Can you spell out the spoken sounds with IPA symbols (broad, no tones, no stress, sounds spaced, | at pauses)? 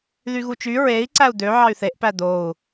ð y ɣ u t͡ʃ y ɹ e i̯ ǀ æ u̯ d̪ ø ʕ ɑ y̯ θ e ʔ p æ d̪ o u̯